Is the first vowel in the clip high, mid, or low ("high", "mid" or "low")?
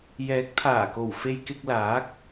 mid